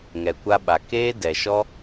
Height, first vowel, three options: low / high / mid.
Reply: mid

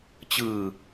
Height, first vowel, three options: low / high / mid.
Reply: high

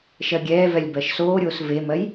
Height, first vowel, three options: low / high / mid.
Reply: mid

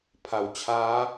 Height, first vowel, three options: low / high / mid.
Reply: low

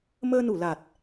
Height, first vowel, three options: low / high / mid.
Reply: mid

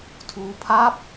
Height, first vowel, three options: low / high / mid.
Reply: high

